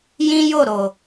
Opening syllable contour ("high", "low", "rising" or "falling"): high